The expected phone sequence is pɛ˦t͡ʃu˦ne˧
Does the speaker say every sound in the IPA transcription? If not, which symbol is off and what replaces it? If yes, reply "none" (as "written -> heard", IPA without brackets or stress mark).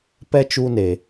none